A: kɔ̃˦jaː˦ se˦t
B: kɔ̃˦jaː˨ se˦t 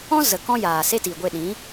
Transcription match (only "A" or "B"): B